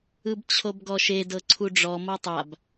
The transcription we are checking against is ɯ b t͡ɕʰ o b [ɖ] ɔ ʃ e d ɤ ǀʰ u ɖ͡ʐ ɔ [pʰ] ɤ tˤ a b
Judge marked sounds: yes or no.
no, no

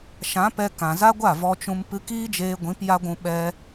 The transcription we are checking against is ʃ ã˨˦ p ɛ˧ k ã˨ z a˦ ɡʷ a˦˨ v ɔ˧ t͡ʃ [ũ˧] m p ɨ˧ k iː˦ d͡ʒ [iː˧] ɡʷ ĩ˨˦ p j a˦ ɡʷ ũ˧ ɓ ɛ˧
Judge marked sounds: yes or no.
yes, no

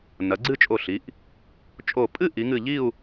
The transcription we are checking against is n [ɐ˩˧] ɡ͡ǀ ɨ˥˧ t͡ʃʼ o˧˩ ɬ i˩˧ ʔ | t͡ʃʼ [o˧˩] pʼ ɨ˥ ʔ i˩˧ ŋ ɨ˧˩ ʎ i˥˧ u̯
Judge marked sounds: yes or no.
yes, yes

